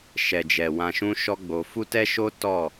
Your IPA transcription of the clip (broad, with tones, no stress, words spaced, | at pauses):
ʃɛ˨d͡ʒɛ˨ wã˧ʃũ˦ʃɔ˦ɡ͡bo˧ fu˦tɛ˦ʃo˦ tɔ˦˨